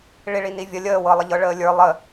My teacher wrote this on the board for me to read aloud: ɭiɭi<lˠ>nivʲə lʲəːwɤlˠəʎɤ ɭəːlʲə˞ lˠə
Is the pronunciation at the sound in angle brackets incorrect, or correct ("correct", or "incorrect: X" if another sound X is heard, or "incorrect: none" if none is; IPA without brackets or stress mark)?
incorrect: none